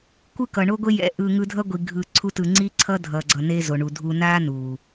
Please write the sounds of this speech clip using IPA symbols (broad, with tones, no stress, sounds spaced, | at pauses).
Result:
kʷ ɯ˦ k ʌ˨ ɳ o˦ ɡʷ e˦ j ɛ̰˧ ʔ ɯ˧ ŋ ɯ˧ dʱ ʌ˦ ɡʷ i˨ ɡʱ ɯ˨ ǀʰ u˧ t ɯ˨ ŋ͡ǀ i˦ ǀʰ ʌ˦ dʱ ʌ˨ ɡ͡ǀ ʌ˨ n e˧ z o˨ ɳ u˨ dʱ u˧ n a˦ n u˨